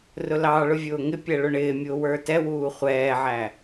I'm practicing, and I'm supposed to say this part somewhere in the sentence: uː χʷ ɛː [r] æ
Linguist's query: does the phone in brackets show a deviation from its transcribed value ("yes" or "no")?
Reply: yes